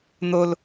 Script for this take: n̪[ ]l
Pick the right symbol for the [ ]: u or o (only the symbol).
o